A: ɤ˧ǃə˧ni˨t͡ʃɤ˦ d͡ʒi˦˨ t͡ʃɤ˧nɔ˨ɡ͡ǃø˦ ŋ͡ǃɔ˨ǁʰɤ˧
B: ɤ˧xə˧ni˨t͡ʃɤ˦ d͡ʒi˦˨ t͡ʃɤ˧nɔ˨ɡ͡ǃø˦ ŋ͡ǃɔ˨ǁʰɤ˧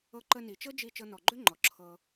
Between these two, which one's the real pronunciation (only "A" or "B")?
A